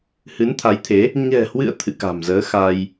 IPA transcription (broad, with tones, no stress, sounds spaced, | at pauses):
h ɨ˨˦ n t̪ʰ a˨˦ j t̪ʰ e˨˦ | ɲ ɛ̤˨˩ h w ɨ̰˧˨ ə̯ t̪ʰ ɨ̰˧˨ k a̤˨˩ m z əː˨˦ x a˧ j